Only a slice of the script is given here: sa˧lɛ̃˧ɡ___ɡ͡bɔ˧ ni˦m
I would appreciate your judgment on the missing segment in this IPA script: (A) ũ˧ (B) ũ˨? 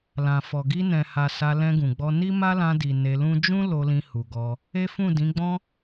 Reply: B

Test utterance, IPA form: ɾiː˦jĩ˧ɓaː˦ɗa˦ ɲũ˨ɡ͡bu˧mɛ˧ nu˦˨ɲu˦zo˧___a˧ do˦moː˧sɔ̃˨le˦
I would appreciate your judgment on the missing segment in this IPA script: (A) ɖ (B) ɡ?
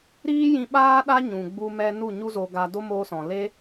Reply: B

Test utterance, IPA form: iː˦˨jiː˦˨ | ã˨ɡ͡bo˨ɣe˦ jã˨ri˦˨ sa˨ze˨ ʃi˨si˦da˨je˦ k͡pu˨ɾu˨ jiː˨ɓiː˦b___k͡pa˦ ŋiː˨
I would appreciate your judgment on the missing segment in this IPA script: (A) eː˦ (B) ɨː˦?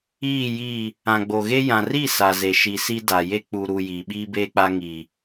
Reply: A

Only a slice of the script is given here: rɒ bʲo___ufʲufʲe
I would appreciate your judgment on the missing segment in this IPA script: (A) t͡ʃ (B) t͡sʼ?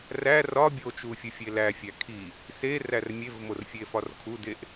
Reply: A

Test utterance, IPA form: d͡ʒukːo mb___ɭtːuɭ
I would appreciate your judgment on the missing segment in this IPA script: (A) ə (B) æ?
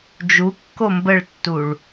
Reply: A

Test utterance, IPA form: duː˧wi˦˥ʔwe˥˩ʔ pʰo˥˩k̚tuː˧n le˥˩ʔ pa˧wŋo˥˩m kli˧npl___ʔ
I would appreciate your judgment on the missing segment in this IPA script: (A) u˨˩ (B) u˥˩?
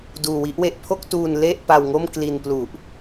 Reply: A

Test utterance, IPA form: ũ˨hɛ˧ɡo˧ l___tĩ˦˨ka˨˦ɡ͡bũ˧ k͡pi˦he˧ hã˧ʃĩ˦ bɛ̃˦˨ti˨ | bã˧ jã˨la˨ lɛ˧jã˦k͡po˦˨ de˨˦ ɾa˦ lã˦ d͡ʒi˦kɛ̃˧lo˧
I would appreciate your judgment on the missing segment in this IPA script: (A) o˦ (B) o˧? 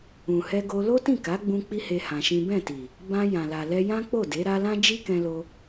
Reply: A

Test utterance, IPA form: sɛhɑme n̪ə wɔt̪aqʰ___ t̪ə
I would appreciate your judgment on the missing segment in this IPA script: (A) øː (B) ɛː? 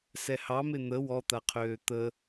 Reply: A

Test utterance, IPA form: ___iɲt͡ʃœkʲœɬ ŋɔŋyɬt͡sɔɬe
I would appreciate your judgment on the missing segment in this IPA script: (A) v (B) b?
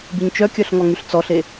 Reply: B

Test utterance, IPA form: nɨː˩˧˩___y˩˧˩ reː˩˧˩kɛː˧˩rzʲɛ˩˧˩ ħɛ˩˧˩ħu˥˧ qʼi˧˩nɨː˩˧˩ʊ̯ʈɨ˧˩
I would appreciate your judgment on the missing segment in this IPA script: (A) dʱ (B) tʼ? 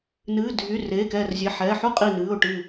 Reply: A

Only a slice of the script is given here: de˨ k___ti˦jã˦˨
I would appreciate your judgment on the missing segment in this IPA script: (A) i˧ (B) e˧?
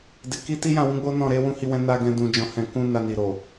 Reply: A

